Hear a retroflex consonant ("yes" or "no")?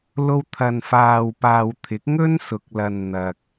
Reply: no